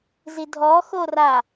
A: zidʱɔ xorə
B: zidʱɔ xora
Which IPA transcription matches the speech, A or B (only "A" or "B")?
B